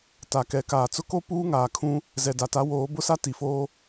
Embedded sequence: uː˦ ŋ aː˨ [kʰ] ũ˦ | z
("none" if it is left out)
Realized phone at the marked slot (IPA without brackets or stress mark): kʰ